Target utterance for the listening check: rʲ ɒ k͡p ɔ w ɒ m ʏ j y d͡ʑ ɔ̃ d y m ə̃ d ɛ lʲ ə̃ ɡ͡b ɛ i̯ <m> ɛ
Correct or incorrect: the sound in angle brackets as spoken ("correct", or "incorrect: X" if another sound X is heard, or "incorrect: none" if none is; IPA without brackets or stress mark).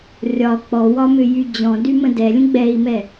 correct